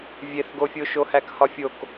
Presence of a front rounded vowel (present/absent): absent